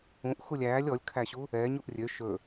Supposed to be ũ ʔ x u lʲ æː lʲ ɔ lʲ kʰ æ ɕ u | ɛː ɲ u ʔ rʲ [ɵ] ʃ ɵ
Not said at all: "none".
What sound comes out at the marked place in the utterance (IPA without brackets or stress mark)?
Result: ø